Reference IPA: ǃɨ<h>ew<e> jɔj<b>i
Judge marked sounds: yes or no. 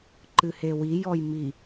yes, no, no

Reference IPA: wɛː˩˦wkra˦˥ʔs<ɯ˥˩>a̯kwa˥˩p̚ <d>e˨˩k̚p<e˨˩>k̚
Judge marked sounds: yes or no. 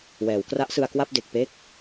no, yes, no

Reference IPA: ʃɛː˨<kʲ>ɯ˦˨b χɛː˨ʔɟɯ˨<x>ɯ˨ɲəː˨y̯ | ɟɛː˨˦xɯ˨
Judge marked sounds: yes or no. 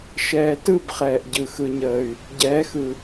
no, yes

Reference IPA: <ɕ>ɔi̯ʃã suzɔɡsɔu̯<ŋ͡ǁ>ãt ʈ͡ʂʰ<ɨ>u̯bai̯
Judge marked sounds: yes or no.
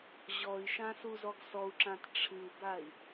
no, no, yes

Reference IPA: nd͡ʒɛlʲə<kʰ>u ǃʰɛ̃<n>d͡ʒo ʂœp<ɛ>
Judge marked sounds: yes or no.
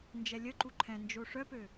no, yes, no

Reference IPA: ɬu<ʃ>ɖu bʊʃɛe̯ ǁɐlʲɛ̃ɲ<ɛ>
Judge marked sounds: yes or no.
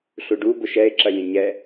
no, yes

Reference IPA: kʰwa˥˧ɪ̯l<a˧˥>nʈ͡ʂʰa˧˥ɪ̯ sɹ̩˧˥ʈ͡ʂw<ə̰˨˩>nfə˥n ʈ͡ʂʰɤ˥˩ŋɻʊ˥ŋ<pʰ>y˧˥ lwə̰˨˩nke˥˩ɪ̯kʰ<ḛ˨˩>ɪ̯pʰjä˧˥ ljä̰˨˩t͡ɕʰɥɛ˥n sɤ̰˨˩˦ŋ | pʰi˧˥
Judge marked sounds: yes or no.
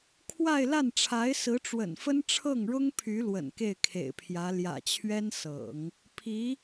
no, yes, yes, yes

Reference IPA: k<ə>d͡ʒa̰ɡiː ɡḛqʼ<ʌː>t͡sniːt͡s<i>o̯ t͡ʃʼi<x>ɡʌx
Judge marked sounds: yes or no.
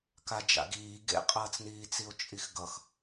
no, yes, yes, yes

